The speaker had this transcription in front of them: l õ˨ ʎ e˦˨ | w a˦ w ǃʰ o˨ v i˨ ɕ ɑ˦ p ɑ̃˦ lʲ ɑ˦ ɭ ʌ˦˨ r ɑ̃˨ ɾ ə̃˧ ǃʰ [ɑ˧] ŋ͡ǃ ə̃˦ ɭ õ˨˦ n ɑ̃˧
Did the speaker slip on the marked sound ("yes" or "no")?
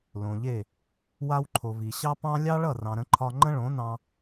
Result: yes